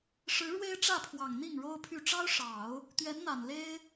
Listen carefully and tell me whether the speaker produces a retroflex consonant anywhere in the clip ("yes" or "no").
yes